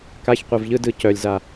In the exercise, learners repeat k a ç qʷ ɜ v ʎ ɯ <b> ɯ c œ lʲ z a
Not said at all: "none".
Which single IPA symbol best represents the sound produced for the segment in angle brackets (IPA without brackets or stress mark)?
d